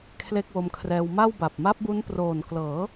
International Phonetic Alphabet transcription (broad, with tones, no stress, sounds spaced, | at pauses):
kʰ l e˥˩ k̚ w o˦˥ m kʰ r ɛː˧ w m a˥˩ w b a˨˩ p̚ m a˦˥ p̚ b u˦˥ n p r oː˨˩ n k l ɤː˩˦